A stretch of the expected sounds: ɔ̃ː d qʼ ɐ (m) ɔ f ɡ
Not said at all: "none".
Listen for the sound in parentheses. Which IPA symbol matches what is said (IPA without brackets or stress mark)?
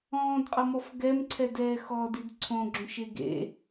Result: m